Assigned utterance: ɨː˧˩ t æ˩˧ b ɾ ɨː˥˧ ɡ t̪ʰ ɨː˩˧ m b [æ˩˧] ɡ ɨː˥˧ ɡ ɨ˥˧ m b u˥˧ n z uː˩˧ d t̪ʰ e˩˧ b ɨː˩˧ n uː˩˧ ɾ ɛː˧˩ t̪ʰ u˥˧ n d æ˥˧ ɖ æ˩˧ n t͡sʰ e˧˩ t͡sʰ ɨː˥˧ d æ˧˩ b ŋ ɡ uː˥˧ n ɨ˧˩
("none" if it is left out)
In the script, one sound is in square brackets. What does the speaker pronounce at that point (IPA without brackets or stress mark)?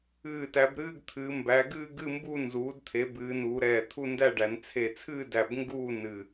æ˩˧